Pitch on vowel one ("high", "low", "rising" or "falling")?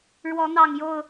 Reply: rising